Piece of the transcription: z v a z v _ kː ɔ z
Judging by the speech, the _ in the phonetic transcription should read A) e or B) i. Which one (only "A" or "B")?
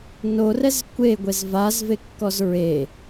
A